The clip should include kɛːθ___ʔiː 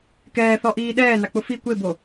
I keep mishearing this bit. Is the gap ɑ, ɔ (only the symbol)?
ɔ